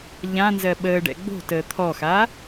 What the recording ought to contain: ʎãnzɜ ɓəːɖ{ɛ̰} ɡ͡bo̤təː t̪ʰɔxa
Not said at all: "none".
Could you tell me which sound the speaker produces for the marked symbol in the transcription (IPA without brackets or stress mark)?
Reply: ɛ̰